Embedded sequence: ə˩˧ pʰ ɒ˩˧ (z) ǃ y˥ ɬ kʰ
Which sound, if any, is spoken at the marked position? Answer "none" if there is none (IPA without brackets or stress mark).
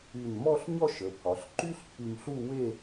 ɬ